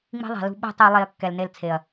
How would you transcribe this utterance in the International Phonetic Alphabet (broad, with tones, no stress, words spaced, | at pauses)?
ŋ͡mi̤˦ðˤɛ̤˨lṳ˦ ɓi̤˦tˤi˧ lˠe˧ɐ̯ kːɛ˨lne˧lt͡sʰe˨ɐ̯